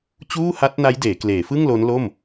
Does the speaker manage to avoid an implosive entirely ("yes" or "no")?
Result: yes